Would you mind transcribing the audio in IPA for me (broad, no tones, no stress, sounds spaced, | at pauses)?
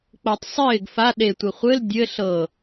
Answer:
k͡p ɤ tˤ sˤ ɪː ɡ f a ɗ e tʷ ɪ χʷ ɘ l dʲ ɘ ɬ ɤ